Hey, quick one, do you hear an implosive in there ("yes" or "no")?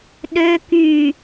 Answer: yes